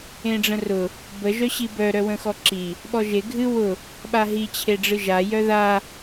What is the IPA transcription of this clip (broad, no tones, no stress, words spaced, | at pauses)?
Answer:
ẽɖ͡ʐə̃rʊ | bə ʒœɕibœ ɾœwə̃xɔǁi | ɓɔʒe ɡʱɨ wʊ | ɓaɦi t͡ɕʰeɖ͡ʐɨʒa jœða